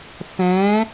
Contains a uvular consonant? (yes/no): no